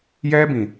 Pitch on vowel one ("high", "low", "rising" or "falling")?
high